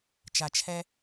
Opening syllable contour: low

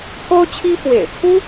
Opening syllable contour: high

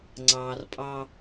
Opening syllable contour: low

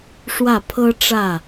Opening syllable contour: falling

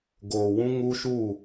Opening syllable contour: low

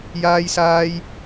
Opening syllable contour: high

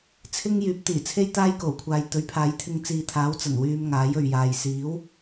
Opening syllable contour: high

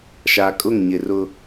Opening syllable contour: low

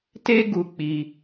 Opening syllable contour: high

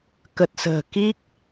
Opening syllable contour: low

